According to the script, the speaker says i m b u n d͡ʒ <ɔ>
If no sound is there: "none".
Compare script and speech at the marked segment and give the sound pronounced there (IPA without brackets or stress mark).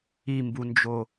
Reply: o